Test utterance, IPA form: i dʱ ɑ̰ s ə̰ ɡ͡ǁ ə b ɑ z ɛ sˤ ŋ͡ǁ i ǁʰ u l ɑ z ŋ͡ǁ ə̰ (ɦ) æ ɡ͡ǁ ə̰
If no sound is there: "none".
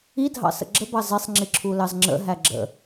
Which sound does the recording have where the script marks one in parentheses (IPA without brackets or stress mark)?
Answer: ɦ